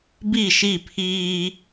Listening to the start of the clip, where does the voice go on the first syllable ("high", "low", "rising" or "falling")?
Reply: falling